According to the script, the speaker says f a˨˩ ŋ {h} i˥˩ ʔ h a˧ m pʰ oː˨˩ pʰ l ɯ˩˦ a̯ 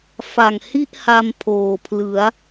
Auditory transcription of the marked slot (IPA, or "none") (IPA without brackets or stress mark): h